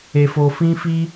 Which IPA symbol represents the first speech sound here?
e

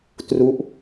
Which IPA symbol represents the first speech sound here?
t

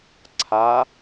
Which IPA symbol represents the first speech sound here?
ǀʰ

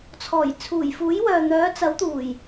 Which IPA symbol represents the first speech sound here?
t͡sʰ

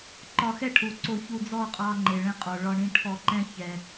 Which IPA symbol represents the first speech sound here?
ǃ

